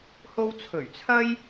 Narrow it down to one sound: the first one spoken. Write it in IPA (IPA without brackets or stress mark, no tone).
h